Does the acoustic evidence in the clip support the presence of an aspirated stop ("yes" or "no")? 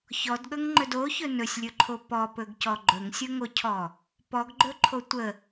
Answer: yes